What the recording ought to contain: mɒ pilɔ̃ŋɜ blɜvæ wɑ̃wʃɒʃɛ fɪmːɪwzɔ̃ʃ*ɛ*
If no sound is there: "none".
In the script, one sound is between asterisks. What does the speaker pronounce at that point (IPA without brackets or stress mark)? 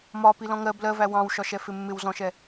ɛ